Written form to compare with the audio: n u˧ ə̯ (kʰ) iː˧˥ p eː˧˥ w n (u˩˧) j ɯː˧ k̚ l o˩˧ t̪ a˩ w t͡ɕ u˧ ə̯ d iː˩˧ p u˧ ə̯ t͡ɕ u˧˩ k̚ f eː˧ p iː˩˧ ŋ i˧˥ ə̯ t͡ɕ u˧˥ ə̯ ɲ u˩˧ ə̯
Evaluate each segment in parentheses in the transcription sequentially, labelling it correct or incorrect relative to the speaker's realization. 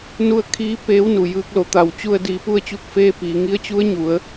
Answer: correct, incorrect: u˩

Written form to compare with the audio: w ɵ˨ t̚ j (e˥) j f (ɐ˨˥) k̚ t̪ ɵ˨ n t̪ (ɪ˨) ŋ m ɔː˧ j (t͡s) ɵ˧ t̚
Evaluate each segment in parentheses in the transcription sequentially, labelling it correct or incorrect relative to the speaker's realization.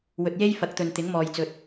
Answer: correct, correct, incorrect: ɪ˨˥, correct

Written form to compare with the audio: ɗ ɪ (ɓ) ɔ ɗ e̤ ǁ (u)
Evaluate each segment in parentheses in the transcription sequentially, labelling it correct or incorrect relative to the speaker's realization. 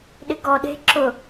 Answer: incorrect: ɡ, incorrect: ʊ

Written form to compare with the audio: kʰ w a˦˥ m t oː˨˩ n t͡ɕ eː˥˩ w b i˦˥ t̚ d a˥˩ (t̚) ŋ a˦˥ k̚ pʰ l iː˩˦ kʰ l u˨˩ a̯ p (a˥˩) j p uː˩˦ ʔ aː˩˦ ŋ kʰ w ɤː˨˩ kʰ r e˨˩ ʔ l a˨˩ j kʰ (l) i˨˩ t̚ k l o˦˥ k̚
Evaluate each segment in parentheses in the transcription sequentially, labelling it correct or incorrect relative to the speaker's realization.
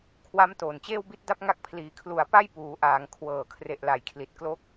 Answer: incorrect: p̚, correct, correct

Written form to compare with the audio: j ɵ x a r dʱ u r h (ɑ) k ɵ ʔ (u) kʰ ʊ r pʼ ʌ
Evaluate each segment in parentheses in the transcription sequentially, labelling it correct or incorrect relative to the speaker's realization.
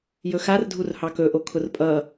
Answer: correct, incorrect: o

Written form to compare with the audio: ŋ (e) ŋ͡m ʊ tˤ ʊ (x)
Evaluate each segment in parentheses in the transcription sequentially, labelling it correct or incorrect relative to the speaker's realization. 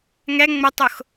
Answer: incorrect: ɛ, correct

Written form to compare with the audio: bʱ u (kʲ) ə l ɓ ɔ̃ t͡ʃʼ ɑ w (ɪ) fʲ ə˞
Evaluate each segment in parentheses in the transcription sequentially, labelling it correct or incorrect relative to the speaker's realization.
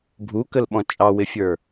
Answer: incorrect: k, correct

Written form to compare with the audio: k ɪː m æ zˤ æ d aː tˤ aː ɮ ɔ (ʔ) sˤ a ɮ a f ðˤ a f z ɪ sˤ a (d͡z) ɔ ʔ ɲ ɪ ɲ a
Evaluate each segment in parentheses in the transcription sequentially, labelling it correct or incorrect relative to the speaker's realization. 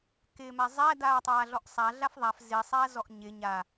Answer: correct, incorrect: z

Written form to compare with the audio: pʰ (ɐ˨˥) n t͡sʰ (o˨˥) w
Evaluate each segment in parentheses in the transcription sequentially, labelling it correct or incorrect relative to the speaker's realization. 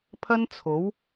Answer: incorrect: ɐ˥, correct

